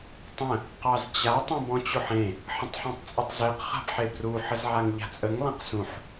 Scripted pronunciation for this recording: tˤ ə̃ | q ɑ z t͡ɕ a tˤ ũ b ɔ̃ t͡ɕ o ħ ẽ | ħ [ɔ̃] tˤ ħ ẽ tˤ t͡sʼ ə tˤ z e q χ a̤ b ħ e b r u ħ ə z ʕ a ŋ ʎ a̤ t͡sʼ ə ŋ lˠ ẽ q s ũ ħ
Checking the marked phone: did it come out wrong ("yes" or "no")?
yes